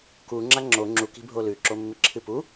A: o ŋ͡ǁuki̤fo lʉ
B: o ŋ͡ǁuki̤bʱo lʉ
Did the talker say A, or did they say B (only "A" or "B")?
B